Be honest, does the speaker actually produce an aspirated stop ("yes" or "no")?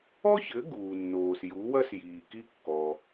no